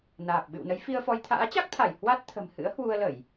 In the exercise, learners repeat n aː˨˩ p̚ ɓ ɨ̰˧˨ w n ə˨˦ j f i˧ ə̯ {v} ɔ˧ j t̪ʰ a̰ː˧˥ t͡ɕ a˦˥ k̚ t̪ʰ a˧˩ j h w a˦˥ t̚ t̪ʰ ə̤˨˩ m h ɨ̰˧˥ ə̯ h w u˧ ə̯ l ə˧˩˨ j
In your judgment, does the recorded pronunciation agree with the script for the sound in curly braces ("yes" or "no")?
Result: no